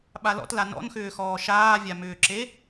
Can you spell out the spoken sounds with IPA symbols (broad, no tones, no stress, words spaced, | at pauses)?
ɓalɔ̰tla nɔ̰nxʏːxɔː ʃaːvʲamʏːǁe